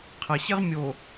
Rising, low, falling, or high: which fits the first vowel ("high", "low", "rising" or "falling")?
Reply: low